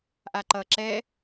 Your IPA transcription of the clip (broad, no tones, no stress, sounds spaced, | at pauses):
ʔ a ǃ ʌ ǁ ɛ